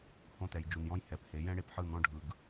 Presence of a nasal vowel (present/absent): present